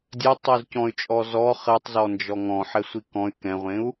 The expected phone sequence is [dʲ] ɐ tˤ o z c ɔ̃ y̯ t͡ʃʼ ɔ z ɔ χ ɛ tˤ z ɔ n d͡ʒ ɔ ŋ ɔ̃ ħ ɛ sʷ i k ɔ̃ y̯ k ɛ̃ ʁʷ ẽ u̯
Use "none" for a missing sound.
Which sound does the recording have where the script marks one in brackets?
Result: dʲ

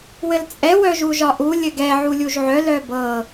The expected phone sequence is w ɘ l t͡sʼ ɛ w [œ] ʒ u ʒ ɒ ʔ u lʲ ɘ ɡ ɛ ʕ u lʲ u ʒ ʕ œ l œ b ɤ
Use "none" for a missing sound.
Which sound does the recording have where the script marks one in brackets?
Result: œ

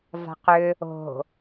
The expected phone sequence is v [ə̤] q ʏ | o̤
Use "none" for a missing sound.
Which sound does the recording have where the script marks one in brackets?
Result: a̤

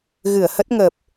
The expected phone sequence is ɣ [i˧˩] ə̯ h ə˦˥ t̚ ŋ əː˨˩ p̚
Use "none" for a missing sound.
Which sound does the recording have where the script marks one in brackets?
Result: ɨ˧˩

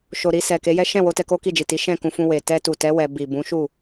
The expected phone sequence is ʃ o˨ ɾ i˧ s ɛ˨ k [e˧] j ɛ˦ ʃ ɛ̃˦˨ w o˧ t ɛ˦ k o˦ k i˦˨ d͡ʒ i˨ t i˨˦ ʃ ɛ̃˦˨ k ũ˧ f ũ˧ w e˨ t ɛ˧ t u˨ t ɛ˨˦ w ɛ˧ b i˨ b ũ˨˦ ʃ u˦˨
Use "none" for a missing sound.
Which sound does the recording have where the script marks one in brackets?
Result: e˨˦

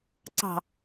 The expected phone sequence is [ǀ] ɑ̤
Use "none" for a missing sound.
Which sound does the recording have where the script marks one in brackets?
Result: ǀ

